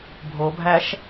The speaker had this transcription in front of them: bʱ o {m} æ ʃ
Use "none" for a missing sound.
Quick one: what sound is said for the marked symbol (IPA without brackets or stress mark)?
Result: bʱ